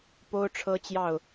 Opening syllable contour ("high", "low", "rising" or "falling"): high